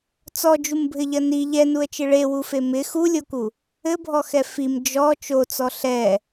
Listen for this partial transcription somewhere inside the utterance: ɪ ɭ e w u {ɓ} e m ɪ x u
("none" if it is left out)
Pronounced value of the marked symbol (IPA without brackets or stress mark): f